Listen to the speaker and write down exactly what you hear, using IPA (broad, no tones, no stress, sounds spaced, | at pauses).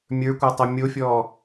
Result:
mʲ ə˞ kʷ ə˞ tˤ ɛ mʲ o fʲ ɔː